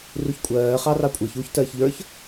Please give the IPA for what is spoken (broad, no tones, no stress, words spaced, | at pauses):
ruçkʷʼɜː χɑrɑkʷʼɜç uç tɜːçʎə˞ç